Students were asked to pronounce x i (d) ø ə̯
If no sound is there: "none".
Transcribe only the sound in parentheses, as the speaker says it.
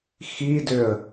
d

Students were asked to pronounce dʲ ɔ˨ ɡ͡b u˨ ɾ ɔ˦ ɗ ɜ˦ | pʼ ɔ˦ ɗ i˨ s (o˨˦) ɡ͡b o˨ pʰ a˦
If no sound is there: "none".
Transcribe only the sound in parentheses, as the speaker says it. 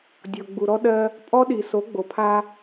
o˨˦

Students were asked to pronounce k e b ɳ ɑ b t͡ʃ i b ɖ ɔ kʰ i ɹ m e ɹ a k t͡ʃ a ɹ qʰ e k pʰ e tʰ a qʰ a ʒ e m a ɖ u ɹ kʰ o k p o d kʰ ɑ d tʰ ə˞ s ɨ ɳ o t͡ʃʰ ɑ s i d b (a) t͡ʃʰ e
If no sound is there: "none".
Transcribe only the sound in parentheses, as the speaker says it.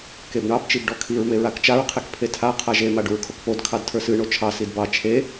ɑ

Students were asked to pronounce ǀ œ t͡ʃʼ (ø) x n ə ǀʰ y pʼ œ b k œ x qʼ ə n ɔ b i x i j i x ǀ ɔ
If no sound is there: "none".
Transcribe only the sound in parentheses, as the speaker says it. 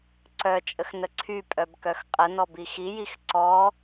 ə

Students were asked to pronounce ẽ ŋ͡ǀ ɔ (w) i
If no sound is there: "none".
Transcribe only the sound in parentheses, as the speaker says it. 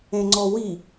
w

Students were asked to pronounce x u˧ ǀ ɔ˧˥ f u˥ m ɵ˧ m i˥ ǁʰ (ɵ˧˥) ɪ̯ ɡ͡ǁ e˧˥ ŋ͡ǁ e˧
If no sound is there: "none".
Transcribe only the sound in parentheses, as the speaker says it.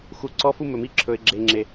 ɵ˧˥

